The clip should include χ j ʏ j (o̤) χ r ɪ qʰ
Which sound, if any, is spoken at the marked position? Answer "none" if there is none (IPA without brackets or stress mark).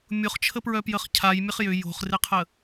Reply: o̤